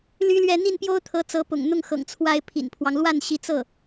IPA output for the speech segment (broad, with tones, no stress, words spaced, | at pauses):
ly˥lɥɛ˥˧ n̪i˥˩npjo˥ʊ̯t̪ʰɤ˧˥ t͡sɤ˧˥pʊ̰˨˩ŋ n̪ʊ˥˩ŋxɤ̰˨˩ŋ t͡sʰwa˥ɪ̯pʰḭ˨˩npʰwɑ˦ŋ lwa˥˩nɕi˧˥t͡sɤ˥˩